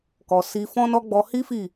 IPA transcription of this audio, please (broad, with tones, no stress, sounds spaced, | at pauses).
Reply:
k ɔ˨ s i˧ f ɔ̃˦ n ɔ˦ ɡ͡b ɔ˧ h i˦ f i˦˨